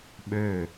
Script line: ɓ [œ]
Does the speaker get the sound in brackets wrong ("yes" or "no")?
yes